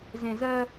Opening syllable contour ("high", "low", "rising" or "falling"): low